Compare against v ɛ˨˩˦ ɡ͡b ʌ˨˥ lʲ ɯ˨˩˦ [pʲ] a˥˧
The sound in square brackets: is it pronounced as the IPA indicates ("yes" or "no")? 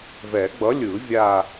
no